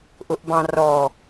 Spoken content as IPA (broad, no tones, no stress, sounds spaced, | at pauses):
ʔ ʊ ʔ b ɑ̃ r ɔ